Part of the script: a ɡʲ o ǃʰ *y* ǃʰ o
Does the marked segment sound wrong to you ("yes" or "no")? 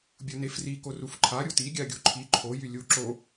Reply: yes